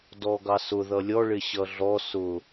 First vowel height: mid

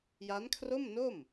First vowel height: low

